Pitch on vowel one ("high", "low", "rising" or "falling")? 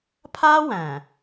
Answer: high